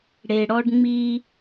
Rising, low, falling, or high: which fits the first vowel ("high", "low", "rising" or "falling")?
low